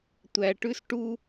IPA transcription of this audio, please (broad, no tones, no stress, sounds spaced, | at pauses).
tʷ æ ʈ ʉ s ʈ u